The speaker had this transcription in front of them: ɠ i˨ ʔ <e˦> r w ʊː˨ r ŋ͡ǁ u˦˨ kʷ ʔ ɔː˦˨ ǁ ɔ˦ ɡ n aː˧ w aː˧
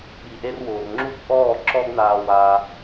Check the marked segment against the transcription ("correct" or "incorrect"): incorrect